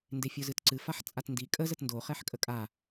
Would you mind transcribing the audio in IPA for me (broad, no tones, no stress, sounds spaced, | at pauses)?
n d e fʲ o z ɨ t ǀ ɨ f a ħ t͡sʼ a t n d i kʼ ə z ə t n d o χ ɛ ħ kʼ ə kʼ a